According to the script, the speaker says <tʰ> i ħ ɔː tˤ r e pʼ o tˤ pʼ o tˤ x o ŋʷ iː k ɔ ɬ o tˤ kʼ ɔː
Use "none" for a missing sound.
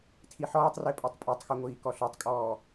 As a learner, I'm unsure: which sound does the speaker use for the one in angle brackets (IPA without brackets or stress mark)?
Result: tʰ